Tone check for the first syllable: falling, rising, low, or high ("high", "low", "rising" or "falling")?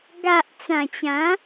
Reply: low